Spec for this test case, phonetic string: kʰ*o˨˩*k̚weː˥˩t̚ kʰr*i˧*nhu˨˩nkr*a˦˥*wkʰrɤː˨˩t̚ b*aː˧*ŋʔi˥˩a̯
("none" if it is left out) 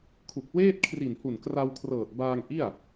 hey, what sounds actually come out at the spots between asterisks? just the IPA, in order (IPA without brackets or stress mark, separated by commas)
u˨˩, i˨˩, a˧, aː˧